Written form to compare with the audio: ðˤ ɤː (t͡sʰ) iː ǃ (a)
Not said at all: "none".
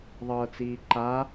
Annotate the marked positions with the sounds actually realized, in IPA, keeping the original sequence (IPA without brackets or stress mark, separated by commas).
t͡s, a